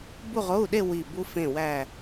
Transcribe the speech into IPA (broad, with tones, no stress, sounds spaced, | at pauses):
b u˥˧ ʁ o˧˥˧ u̯ ɗ e˥˧ w i˧˩ b u˧ f ẽ˧˩ w æ˧˩